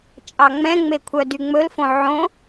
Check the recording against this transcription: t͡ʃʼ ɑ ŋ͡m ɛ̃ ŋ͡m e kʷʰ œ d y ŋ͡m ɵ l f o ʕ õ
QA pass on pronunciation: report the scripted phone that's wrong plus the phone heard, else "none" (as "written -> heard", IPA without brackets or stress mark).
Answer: o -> õ